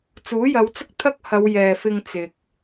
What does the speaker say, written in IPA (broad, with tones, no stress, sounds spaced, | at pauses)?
t͡s uː˨˥ j ɐ˨˧ w t͡s ʊ˥ k̚ t̪ʰ ɐ˥ k̚ h ɐ˨˧ w j ɛː˨ f ɪ˧ ŋ t͡s ɪ˨ k̚